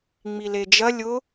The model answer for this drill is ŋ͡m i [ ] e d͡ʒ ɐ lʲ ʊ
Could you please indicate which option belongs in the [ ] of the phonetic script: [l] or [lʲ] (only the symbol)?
l